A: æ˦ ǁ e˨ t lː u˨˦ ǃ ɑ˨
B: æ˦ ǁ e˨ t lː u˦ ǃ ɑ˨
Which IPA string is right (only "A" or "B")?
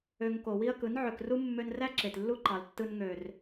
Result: B